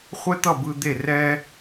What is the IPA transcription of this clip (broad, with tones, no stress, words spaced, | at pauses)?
χʷɛ˥t̪ʌ˥˩bɯ˧ d̪e˥˩rɛː˥